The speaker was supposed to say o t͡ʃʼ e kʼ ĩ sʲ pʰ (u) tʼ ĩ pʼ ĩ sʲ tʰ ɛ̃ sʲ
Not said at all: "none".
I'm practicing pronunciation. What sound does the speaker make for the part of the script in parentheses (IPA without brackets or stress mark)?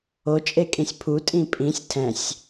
u